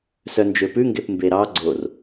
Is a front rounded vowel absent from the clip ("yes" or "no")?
no